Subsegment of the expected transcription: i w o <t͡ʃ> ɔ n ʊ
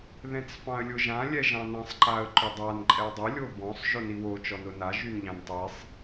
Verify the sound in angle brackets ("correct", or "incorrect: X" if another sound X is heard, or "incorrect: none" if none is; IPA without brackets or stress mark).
correct